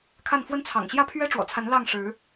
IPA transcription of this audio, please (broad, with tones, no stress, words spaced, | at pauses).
kʰa˥˧n fwə˥˩nt͡sʰɑ̰˨˩ŋ ɕjä˥pʰɥɛ˥ʈ͡ʂwɔ̰˨˩t͡sʰa˧˥n lɑ˥˩ŋʂɻ̩˧˥